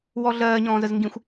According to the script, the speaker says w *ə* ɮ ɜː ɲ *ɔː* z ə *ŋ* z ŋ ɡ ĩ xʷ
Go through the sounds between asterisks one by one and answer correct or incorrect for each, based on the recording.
incorrect, incorrect, incorrect

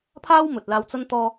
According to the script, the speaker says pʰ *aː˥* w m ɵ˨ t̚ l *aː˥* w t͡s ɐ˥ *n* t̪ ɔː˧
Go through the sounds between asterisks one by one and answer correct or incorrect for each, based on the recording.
correct, incorrect, correct

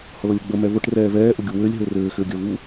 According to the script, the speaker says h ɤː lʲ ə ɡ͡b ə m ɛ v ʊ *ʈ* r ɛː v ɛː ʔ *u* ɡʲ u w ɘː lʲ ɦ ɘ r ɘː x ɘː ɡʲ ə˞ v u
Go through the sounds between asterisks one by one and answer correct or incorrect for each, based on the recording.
correct, incorrect

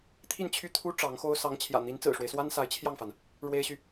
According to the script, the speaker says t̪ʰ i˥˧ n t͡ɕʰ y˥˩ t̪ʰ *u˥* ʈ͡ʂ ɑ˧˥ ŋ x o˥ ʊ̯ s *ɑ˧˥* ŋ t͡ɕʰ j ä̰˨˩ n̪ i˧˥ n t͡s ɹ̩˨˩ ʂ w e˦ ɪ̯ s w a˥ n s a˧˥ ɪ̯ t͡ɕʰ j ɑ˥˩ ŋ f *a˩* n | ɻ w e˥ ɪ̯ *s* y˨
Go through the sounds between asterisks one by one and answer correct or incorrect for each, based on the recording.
correct, correct, correct, incorrect

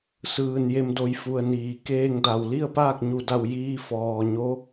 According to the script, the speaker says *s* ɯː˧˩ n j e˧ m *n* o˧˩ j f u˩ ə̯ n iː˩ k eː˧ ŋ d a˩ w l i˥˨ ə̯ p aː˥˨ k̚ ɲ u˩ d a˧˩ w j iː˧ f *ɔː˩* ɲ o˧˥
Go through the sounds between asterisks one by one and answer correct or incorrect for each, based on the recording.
correct, incorrect, correct

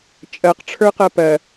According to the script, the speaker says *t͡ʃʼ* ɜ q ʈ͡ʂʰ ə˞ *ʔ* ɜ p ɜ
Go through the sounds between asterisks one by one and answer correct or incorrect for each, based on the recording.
correct, incorrect

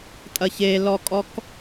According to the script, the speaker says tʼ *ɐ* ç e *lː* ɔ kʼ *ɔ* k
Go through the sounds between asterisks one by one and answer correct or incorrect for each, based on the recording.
correct, incorrect, correct

